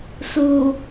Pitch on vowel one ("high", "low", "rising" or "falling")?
low